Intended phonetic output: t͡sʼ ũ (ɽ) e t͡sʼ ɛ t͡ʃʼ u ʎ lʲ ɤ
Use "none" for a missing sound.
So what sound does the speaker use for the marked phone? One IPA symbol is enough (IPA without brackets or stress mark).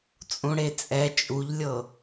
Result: ɽ